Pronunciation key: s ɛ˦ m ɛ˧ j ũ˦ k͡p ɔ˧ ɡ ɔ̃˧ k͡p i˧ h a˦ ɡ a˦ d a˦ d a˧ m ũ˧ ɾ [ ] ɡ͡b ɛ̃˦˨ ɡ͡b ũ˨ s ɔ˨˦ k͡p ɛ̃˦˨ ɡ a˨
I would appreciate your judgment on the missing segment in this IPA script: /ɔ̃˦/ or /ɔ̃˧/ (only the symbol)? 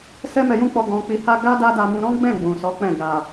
ɔ̃˦